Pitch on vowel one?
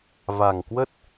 low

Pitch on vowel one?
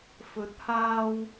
rising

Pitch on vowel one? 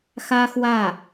high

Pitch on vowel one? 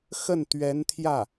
falling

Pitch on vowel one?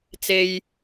low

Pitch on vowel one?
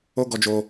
high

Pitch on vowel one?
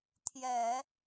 low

